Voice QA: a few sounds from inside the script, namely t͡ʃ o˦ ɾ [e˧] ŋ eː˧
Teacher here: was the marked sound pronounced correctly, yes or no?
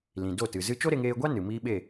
yes